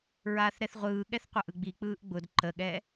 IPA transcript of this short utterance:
ɹ aː θ ɾ ɛ θ ʁʷ ɯː ɠ ɛ θ qʷ a ʔ ɯ ɡ͡b i k͡p ɯː ʔ ɡ͡b ʊ d ǃ ə ɠ ɛ

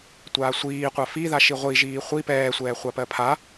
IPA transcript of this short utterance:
tʷ aː sʷ iː qʷ a f i ð a ʃ i ʁʷ i ʒ iː χʷ i p ɛː sʷ ɛː χʷ a p ɜ pʰ a

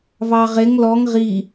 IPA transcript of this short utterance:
v ɑ ʁ e ŋ l ɔ ŋ ʁ i

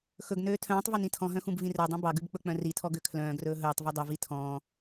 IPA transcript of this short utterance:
x ɵ ɡ n øː tʰ œ̃ː tˤ v e n ĩ tʰ ɔ̃ ɦ œ̃ x ũ b v ĩ r œ dˤ ũ b ɑ ɡ ʉ b k͡p ɵ k͡p œ̃ r i tʰ ɔ ɡ ø kʰ l œ̃ː ɡ r ɵː ɦ ɵː tˤ v œ dˤ ɵ v i tʰ ɔ̃ː

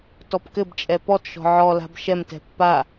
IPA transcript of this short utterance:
t ɔ p k ɘ b t͡ʃʼ ɛ p ɔ t ʃ ɔ̤ ʕ ɔ l a̤ b ʃ ɛ m t ɛ̤ pː a

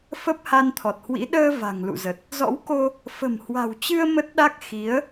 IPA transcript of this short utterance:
f ə˦˥ p̚ h a˧ n t̪ʰ ɔ˨˩ t̚ h w ḭ˧˥ ɗ əː˧ v a̤˨˩ ŋ l ṵ˧˨ z ə˨˩ t̚ | z ɔ̰˧˥ w k o˧ | f ə̤˨˩ m h w a̤˨˩ w t͡ɕ ɨ˧ ə̯ m ə˦˥ t̚ ɗ a˦˥ k̚ x i˨˦ ə̯

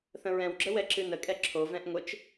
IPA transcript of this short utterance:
θ ə̃ ɹ ɛ̃ w ɡ͡ǁ ə w ɛ ǁ ɨ n ə kʼ ɛ ǁʰ o v ɛ̃ ʔ ŋʷ ɘ t͡ʃ

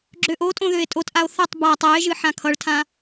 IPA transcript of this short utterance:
ɡ͡ǁ ø ʔ o tʼ õ ð ø e̯ tʼ o t ʔ a o̯ θ ʌ tˤ b a tˤ ɛ e̯ ʒ ɨ ħ ã kʰ ʌ ɭ tʰ ã

